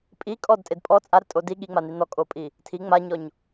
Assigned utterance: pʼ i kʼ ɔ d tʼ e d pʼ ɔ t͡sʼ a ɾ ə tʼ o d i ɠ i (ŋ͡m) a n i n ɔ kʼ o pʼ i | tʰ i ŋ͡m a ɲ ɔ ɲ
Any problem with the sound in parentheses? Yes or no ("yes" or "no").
no